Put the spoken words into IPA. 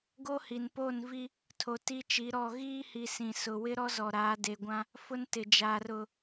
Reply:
ɡ o˦ h i˨ n p o˦˨ n v i˦ | tʰ o˨ t i˦ t͡ʃ i˨˦ ɾ ɔ˦˨ ɣ iː˦ h i˨ s ĩ˨ s ʊ˨ w ɪ˦ ɾ ɔ˦ z ɔ˨ ɾ aː˨˦ d e˨ ɡʷ ã˦ | f ʊ˦ n t ɪ˨ d͡ʒ aː˨ r ʊ˨

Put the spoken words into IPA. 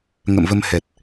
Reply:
ŋ ə̰˧˨ m v ə˧ m h ɛ˨˩ t̚

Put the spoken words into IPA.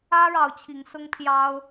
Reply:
ä˦ ɻ ɑ˨˦ ʊ̯ t͡ɕʰ i˨˦ ŋ s ʊ˦ ŋ pʰ j ɑ˦ ʊ̯

